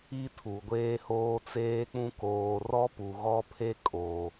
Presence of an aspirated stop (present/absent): present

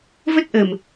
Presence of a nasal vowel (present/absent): absent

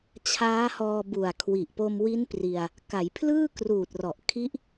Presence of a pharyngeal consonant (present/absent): absent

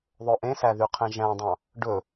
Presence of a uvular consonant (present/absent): present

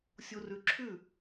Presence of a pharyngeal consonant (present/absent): absent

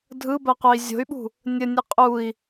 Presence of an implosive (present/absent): present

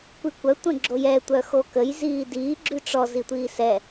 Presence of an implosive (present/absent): absent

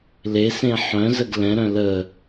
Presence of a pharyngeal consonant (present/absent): present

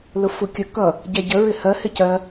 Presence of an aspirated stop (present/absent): absent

